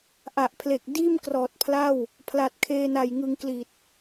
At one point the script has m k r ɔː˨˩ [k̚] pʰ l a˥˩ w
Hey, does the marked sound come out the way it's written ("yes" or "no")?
no